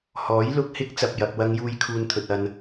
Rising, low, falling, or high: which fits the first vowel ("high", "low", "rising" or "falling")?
rising